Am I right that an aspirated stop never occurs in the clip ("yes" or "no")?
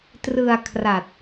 no